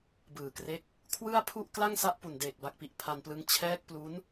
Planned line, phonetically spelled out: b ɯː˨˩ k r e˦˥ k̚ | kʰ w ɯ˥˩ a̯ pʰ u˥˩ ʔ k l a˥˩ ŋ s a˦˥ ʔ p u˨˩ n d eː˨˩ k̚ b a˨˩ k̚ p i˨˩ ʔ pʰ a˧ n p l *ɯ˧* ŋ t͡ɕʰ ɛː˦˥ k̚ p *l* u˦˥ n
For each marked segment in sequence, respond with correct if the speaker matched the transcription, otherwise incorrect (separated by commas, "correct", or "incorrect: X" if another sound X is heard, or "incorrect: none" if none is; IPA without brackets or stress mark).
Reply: correct, correct